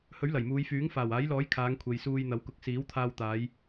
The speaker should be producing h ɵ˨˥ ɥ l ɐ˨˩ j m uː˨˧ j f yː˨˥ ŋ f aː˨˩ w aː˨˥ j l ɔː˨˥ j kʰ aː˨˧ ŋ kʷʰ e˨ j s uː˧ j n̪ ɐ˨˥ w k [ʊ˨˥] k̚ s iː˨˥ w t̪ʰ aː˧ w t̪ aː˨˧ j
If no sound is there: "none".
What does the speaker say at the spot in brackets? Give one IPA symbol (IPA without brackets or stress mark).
ʊ˨˥